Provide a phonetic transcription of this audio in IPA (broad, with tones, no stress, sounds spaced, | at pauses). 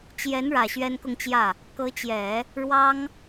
t͡ɕ j ɛ˧˥ n ɻ ä˨˩ ɕ ɥ ɛ˥ n k ʊ˥˧ ŋ t͡ɕ j ä˥˩ | k ɤ˧˥ t͡ɕ j ɛ˨˩˦ | ɻ w ɑ˥ ŋ